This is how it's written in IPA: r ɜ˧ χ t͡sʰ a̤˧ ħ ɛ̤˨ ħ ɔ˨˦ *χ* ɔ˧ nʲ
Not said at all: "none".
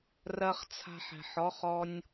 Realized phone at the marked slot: χ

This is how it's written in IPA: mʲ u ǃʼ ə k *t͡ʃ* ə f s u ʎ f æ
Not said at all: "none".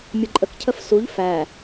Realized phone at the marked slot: cʰ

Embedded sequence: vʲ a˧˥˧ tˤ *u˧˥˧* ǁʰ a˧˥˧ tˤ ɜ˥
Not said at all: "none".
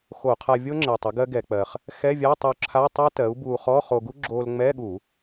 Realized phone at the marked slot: u˧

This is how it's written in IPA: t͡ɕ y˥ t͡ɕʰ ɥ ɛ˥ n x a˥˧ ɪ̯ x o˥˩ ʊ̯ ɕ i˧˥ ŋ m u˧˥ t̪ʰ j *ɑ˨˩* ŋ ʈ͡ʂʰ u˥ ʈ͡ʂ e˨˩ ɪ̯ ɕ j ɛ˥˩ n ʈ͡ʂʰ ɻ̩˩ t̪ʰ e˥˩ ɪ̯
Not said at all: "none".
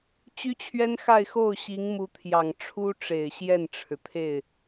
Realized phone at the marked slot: ɑ˨˩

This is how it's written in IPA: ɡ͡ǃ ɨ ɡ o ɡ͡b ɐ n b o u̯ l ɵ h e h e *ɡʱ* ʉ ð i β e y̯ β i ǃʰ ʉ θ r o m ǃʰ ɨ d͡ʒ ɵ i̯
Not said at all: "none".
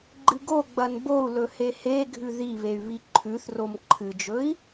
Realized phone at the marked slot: ɡʱ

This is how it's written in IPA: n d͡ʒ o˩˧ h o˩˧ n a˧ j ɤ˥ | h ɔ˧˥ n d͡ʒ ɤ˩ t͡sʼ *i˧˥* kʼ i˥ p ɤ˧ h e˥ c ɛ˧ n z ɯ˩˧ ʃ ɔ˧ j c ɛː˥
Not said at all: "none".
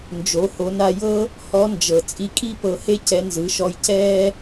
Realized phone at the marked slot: i˧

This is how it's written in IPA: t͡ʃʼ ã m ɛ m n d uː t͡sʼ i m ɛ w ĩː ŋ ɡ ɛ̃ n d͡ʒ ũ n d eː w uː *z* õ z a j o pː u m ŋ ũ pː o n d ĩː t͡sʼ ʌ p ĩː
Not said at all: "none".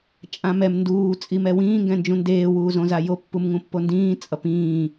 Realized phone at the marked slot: z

